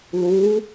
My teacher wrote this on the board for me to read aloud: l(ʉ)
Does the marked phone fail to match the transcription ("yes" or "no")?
yes